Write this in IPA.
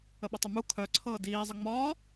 ə ɓ ə tˤ ə m u kʰ œ ǀʰ ɤː d iː zˤ ə ŋ͡m ɒː

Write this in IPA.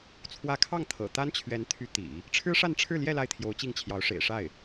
t͡sʰ w ä˧˥ kʰ ɑ˥˩ ŋ t̪ʰ ɤ̰˨˩ t̪ a˥ n t͡ɕʰ ɥ ɛ˧˥ n t̪ʰ y˧˥ t̪ ḭ˨˩˦ | ʈ͡ʂʰ ɻ̩˥ ʂ a˥˧ n ʈ͡ʂʰ ɻ̩˥˧ l j ɛ˥˧ l a˥˩ ɪ̯ t̪ʰ j o˧˥ ʊ̯ t͡ɕ i˥˩ ŋ t͡ɕʰ j ɑ˧˥ ʊ̯ ʂ ḛ˨˩ ɪ̯ ʂ a˥˩ ɪ̯

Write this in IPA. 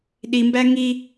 ɗ i m b æ ŋ i

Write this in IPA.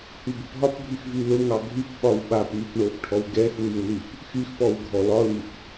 h y b ʊ p ɦ ɒ p bʱ y x v y l ʊ ŋ ɑ ɡʱ y p ɓ ɒ w ɓ a p m y p ɳ o p ʈʰ ɔ w ɡ ɛ x w y w l y p | x y x p ɔ w ɡʱ ɔ l ɒ l y p

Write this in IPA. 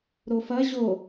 ɾ o f ɐ ʑ o

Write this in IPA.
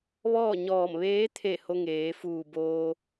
ʋ ɔː˥˨ ɲ ɔː˧˩ m ʋ eː˧˥ t̪ʰ e˧˩ h o˧ ŋ eː˩˧ f uː˧˩ b oː˧

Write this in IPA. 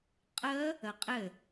qʼ ə | ə qʼ ɘ

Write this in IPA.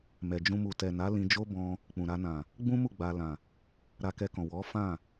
m ɛ˨ d͡ʒ ũ˧ m u˨ t ɛ˨ n a˨˦ l ĩ˧ d͡ʒ o˦ b ɔ̃˧ | k͡p ũ˨ ɾ a˧ n ã˨ | ɡ͡b ũ˦ m u˦˨ ɡ͡b a˧ l ã˨ | ɾ a˧ k ɛ˧ k ɔ̃˨ w ɔ˨˦ f ã˦˨

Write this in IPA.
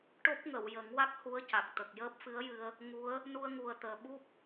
ʈ o˦˥ p̚ ŋ ə˨˩˨ w j ə˨˩˦ ŋ w a˦˥ k̚ h u˧˥ ə̯ c a˨˩ k̚ t̪ ə˨˩ k̚ j əː˦˥ p̚ f ɨ˧˥ ə̯ j ɨ˧ ə̯ | ŋ u˧˥ ə̯ | n u˧ ə̯ ŋ u˨˩ ə̯ t̪ əː˨˩ ɓ u˦˥ p̚

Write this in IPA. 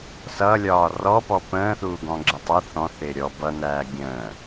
s ʌ lʲ ɒː r ɔ p ɔ p ə̃ː θ uː ɡ ɔ̃ ɡ͡ǁ ə tˤ ʌ θ ɔ̃ θ ɪː ɾʲ ɔ b ʌ n æː ɡʲ ə̃ː

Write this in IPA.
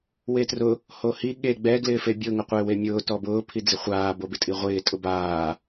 w e t r ʊ | h o h i ɠ e ɡ͡b ɛ ɡ l ɪː f e bʲ ʊ ŋ ʊ qʷ ɪː w e mʲ ʊː t ɔ b ʊː pʰ i d͡z ɪ χʷ aː b o b ɪ tʼ i ʁʷ ɪː tʼ ʊ b aː

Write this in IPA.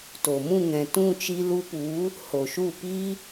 t o˨ m ũ˦˨ ŋ ɛ̃˨ t ũ˦˨ t͡ʃ i˧ l u˧ p u˨˦ | h o˨ ʃ u˦˨ p i˦

